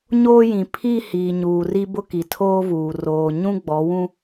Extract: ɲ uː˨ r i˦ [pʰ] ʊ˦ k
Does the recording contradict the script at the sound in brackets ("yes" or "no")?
yes